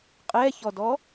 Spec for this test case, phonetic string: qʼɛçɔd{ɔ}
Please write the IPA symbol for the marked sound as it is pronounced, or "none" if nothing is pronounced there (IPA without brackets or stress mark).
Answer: ɔ